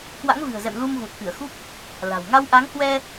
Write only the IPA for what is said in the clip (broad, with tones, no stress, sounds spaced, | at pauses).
k w a̰˧˥ ŋ v ɨ̤˨˩ ə̯ z ɛ̰˧˨ m l u˧ m ɣ u˨˩ t̚ k ɨ˧˩ ə̯ x u˦˥ k̚ | l a̤˨˩ w ŋ a˧ w ʔ a˨˦ ŋ h w ɛ˧